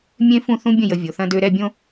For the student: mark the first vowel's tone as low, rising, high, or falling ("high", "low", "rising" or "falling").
high